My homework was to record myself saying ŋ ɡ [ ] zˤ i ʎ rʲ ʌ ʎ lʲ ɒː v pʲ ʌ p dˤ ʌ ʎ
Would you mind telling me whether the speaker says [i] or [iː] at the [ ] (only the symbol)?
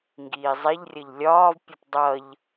iː